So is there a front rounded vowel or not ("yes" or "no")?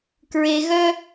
yes